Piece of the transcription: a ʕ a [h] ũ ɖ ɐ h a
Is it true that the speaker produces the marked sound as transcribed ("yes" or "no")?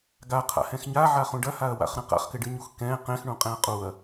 no